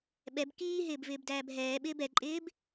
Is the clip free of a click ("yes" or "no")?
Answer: no